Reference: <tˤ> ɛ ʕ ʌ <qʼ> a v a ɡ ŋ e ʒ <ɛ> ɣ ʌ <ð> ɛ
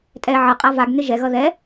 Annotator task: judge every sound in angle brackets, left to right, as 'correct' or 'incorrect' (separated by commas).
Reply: incorrect, correct, correct, correct